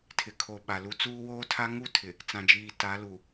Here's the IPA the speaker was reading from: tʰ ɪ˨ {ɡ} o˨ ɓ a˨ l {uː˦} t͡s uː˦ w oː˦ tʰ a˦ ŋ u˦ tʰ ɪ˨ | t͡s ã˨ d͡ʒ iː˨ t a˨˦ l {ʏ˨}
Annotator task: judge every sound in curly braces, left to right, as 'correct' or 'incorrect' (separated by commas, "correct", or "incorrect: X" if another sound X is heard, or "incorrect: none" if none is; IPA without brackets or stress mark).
incorrect: kʰ, incorrect: u˦, incorrect: u˨